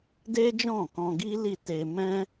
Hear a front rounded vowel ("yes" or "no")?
no